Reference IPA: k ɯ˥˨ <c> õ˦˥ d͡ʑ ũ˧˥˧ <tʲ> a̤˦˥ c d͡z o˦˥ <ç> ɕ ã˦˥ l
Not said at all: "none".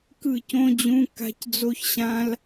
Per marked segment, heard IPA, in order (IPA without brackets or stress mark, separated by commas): c, k, ç